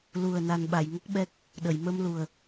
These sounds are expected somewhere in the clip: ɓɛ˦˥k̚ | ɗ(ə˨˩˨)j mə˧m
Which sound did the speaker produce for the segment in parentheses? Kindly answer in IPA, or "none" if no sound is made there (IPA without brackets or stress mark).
ə˨˩˨